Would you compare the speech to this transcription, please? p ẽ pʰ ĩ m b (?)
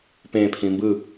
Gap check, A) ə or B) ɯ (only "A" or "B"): B